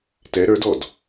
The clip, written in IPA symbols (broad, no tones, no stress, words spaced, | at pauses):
tɛ ɾə˞dɔd